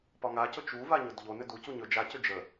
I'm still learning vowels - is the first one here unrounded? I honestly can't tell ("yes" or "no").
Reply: no